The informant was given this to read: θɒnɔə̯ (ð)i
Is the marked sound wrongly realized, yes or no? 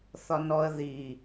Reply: no